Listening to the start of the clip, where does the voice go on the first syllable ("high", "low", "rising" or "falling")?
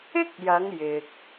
high